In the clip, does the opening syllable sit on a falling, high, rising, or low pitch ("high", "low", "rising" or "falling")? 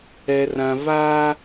low